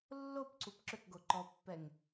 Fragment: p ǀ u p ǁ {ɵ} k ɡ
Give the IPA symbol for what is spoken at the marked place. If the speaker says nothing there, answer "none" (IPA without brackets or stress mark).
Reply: ø